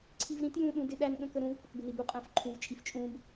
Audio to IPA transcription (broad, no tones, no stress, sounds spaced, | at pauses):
ǀʰ i v ɾ ĩ t j ũ ɗ ũ d ɪ ɗ æ n ɠ ə̃ k ə ɾ ũ v k ʊ k b ɪ n i b u qʼ æ̃ f ǃʰ ũ v t͡ʃʼ i f t͡ʃʼ ũ b